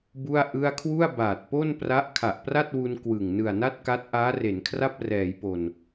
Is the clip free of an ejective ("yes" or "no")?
yes